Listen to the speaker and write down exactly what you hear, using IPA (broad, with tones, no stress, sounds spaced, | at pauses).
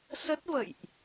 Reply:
s ə˦˥ t̚ v ə̰˧˨ j ʔ